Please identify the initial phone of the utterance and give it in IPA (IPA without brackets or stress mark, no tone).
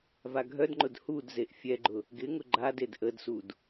v